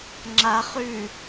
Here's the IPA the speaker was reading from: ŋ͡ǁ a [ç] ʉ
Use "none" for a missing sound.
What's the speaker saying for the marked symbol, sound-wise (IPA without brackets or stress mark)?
χ